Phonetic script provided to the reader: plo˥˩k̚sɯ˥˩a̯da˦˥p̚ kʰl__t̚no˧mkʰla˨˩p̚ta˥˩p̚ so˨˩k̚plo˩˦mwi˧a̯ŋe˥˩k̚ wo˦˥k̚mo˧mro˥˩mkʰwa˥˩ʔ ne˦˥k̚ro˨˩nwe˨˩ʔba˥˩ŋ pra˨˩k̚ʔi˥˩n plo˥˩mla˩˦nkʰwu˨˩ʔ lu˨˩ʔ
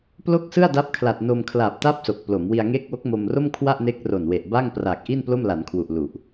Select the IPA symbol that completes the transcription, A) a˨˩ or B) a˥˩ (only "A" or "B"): A